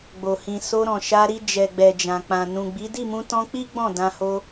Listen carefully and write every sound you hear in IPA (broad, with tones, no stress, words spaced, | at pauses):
ɡ͡bo˨hĩ˨ so˧ɾɔ̃˨ ʃa˧ɾi˧ d͡ʒɛ˨ɡ͡bɛ˨d͡ʒã˨k͡pã˨ nũ˨ɡ͡bi˨˦ di˦˨mũ˧tɔ̃˧k͡pi˦ ɡ͡bɔ̃˦˨dã˧ho˧